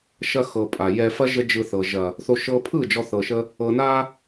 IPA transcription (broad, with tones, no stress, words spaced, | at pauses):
ʃɐ˧xɤ˨ pʼa˨jɛ˧fɐ˦ ʒə˦d͡ʒɯ˧θɤ˨ ʒɐ˨ | θo˧ ʃɤ˧pʰɯ˦˨ d͡ʒɔ˧ θɤ˨ʃə˧ | ɤ˨na˧